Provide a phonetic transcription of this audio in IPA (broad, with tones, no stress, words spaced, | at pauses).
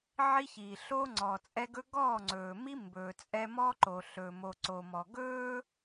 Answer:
ʕi˦çiː˨ ɬoː˦ŋ͡ǀɔː˨ t͡sʼɛ˦ɡɵ˦ ɡɔː˦˨ŋ͡ǀɵː˨mi˦ mbɵː˨t͡sʼɛ˦ mɔ˦ǃo˨ ɬɵː˨mo˨ǀo˨mɔ˨ ɡɵː˦